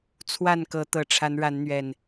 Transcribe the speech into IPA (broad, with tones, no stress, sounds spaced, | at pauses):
t͡sʰ w a˥˨ n k ɤ˨˦ t̪ ɤ˨˩ ʈ͡ʂʰ a˨˦ n ɻ a˨˦ n n̪ ɥ ɛ˨˩ n